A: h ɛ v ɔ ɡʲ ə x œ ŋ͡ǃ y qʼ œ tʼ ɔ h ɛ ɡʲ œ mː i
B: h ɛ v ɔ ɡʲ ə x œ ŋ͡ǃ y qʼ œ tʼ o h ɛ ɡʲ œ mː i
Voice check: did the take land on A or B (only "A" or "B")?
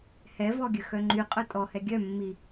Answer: A